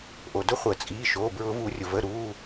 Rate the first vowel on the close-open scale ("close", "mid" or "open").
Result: mid